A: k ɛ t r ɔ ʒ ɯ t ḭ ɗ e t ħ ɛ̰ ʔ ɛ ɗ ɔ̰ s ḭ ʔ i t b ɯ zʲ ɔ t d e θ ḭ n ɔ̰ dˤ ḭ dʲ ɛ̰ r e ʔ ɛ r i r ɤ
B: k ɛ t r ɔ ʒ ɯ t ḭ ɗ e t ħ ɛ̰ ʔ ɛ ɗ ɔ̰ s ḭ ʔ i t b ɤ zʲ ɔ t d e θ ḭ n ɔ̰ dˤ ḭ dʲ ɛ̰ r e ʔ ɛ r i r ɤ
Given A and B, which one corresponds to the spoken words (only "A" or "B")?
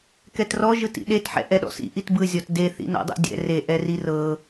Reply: A